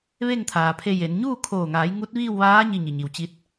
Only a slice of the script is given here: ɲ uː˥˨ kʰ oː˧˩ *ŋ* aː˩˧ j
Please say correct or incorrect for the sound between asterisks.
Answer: correct